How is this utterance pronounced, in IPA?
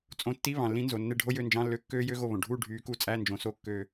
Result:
t͡sʼõ˨˦tːi˧˥˧ βɑ̃˩lːĩ˨˦nzo˩ nːe˦˨ɖʱo˦˥ jø˦˨nd͡ʒɑ̃˧˥˧lːø˧˥˧ kːøː˦˥jø˦˥ɣo˦˨βõ˩ ɖʱuː˦˨ ɖʱyː˨˦ku˦˨t͡sʼæ˧˥˧ nd͡ʒõ˨˦so˧˥˧ kːø˦˨

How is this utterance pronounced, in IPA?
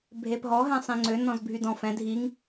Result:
bʱepɦɔ ɦɛ̃sˤĩŋ͡ǀø nɔ̃zbʱydɔ̃f ɛ̃ dʱiŋ

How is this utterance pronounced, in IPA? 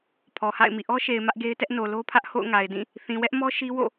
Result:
pʰɔ˨ha̰˦˨ɪ̯mḭ˦˨ ʔɔ˦ʃe˨ɪ̯ mä˦ʔɡe˦ɪ̯tɛ˦ʔ no˨lo˦pʰä˦ʔ ho̰˦˨ʊ̯ŋa˨ɪ̯dĩ˦˨ | θĩ˨wɛ˦ʔmɔ˦ ʃi˦wo̰˦˨

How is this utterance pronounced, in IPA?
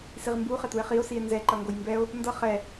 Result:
siʁmbu χɛtue̯χio̯ sie̯nzɛ ǃʌŋɡojmbɛo̯ | ndʌ χɛ

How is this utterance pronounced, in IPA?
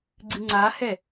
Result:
ɡ͡ǀɨŋ͡ǀahɛ

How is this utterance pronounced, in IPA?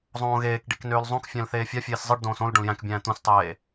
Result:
zˤõːɣeːkɖik nøːlzˤõkfʲæ̃l θeːfʲɑfʲeːs zˤɯɖdõːs õl ɖõljæ̃kbʲæ̃ː t̪ũstˤeː

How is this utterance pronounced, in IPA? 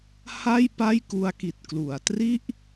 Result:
ha˥˩j pa˥˩jku˦˥a̯ki˨˩t̚ klu˩˦a̯tri˥˩ʔ

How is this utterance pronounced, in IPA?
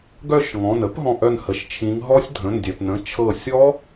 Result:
ɡœ˥˨ʃŋɔ̃˩˧˩n ə˦˥pɦɔ̃˧˩ʔœ˧˩n hə˩ʃt͡ʃʰĩ˩˧ŋɦɔ˦˥sʲ dʱə̃˩˧˩ndʲœ˩pnə̃˩˧˩ t͡ʃʰɤ˧˩sʲɔ˦˥

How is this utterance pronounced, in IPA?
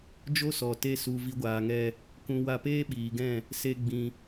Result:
d͡ʒo˦sɔ˨ te˦su˧ vi˦ɡʷaː˧ŋɛ˦ | kũ˧ wa˧peː˦ɓiː˨ɡɛ̃˦˨ | se˧ ɡ͡bĩ˧

